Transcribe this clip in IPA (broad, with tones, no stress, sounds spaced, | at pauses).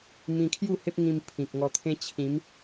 m ĩ˧ kʰ j u˥˧ h e˦ p̚ ŋ ĩ˧ m pʰ ĩ˨ k̚ ŋ ɔ˧ t̪ʰ ẽ˦ t͡ɕʰ ĩ˨˦ m